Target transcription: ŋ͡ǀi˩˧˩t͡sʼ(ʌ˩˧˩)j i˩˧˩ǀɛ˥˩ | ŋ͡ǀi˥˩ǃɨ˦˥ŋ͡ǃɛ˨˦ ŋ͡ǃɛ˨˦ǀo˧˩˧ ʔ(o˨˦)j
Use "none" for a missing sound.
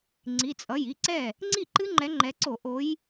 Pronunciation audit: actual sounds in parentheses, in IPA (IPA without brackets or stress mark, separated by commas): ʌ˩˧˩, o˨˦